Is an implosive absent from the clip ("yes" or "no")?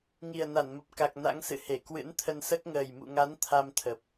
yes